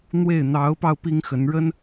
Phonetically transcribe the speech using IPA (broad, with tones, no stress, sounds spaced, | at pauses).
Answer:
n̪ w e˥˩ ɪ̯ n̪ ɑ˧˥ ʊ̯ p ɑ˧ ʊ̯ p i˥ ŋ x ə˧˥ n ɻ ə˥ n